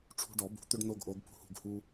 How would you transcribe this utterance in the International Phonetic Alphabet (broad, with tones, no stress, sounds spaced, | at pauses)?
ʈ͡ʂʰ ṳ˦ ɖ ɔ˨˩˦ b ṳ˨˩˦ t̪ ʏ˦ ɖ n o˦ ɡ ʔ o˨˦ ɡ p ṳ˦ h ṳ˥˨ ɡ h u˦